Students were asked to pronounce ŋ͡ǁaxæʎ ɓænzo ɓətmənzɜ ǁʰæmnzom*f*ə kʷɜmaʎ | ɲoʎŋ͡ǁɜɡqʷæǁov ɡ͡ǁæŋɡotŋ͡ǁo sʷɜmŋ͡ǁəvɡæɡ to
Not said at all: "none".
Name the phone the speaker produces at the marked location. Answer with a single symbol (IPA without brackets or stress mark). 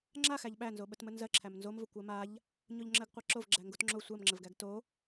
v